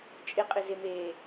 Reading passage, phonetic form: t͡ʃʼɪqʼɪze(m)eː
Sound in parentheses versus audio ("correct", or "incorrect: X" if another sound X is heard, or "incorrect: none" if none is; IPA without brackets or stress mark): correct